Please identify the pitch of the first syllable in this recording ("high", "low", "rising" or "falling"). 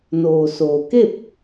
low